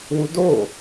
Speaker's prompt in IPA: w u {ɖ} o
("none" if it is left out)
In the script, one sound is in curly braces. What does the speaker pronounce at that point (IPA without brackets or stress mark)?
d